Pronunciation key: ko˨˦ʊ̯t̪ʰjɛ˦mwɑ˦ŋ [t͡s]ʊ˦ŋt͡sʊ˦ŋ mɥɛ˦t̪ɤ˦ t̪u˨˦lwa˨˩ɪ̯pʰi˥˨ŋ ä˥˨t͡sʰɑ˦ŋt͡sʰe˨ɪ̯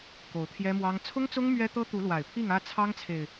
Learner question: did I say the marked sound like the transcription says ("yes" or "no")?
no